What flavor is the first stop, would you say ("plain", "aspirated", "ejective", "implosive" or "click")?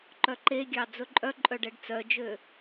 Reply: click